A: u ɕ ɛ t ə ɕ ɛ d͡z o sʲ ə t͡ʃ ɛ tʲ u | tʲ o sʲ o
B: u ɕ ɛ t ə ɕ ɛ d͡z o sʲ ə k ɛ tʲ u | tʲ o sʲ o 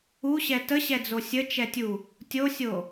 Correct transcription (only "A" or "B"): A